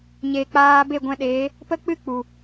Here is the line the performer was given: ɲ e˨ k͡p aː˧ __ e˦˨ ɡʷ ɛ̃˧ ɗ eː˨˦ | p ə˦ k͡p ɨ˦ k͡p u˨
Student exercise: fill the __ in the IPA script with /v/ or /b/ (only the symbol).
b